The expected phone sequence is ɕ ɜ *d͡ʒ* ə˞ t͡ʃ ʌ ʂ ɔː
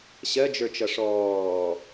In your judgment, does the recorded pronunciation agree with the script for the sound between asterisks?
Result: yes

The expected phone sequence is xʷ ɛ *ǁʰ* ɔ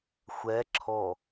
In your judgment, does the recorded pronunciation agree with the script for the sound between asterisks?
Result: yes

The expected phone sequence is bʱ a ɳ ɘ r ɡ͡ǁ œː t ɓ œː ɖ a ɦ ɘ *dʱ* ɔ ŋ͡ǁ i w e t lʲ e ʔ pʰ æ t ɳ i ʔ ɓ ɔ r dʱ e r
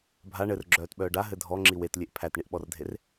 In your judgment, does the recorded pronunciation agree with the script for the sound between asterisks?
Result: yes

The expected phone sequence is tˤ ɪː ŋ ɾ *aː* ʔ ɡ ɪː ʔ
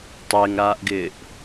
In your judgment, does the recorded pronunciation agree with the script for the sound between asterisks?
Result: yes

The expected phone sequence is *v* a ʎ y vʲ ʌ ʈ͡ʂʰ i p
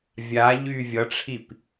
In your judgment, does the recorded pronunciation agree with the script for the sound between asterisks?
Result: no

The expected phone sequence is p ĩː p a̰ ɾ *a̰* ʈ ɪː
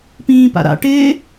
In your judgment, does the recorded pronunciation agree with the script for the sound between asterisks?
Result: yes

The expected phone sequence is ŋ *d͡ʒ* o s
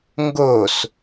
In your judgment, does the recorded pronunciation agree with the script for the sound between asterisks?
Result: no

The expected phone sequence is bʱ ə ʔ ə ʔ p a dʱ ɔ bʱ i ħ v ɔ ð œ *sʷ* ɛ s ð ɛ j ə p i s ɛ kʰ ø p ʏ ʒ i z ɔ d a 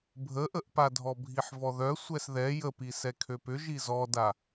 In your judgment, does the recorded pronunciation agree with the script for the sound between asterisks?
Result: yes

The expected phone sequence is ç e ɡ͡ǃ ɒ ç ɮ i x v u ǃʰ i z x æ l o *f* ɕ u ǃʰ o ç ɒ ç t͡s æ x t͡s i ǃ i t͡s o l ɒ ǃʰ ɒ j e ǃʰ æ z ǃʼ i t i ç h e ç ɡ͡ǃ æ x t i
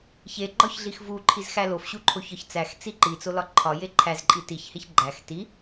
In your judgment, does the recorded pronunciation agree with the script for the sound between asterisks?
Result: yes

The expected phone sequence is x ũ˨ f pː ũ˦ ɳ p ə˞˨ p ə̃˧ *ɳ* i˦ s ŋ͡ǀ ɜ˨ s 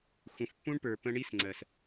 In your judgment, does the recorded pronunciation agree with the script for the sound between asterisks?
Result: yes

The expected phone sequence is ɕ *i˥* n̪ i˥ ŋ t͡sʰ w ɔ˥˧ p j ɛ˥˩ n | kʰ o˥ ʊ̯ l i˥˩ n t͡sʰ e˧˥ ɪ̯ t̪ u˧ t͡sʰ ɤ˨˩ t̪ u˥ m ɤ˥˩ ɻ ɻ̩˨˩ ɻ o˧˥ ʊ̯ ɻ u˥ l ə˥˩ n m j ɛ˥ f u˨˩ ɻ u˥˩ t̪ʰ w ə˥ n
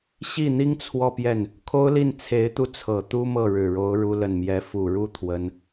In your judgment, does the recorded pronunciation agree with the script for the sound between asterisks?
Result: no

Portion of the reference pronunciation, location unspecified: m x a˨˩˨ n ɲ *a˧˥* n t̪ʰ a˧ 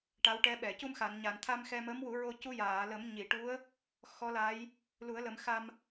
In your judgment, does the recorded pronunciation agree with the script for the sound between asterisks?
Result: no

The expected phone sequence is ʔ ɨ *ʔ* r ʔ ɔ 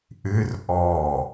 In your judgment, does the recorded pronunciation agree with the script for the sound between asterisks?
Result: no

